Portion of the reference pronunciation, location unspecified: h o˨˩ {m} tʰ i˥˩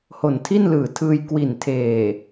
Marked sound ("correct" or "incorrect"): incorrect